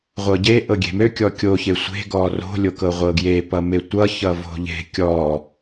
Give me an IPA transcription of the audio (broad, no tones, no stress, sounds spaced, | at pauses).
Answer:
ʁʷ ɤ ɟ e ʔ ɤ ɡʲ e̤ m ø kʲ ɔ kʲ o ç e sʷ e̤ ɡ ɔ r o̤ lʲ o k ɤ ʁʷ ɤ ɡ j e p ʌ m e tʷ ʌ ç ʌ v o̤ ʎ e̤ kʲ ɔ